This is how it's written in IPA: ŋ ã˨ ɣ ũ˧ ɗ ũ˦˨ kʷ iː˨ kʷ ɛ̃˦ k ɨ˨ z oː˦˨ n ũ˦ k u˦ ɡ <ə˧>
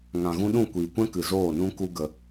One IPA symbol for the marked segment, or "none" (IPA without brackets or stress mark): ə˧